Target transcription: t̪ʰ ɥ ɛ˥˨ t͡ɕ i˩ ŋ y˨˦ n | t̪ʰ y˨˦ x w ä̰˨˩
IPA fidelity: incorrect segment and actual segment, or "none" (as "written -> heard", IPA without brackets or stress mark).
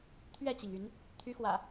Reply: none